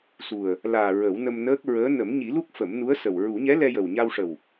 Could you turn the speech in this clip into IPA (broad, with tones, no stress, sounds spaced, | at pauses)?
s u˨˩ ə̯ | l aː˨˩ ɹ ə˨˩˦ w n ə˧ m n əː˦˥ k̚ ɹ əː˧˥ n ə˨˩˦ m ɲ i˨˩˦ l u˦˥ k̚ f ə˨˩˦ m n u˧˥ ə̯ s ə˨˩ w ɹ u˨˩˦ ɲ ɛ˧˥ l ɛ˧ j ə˨˩ w ɲ a˧ w ʂ ə˨˩ w